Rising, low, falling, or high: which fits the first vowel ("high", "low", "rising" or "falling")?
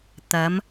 rising